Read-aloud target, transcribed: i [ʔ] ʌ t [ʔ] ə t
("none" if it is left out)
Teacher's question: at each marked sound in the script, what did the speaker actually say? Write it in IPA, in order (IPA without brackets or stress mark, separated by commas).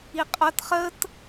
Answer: qʼ, χ